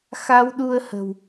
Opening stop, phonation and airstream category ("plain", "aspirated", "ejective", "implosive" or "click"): implosive